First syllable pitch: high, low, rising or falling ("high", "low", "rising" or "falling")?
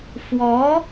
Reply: rising